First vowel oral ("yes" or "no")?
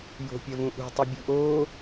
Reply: yes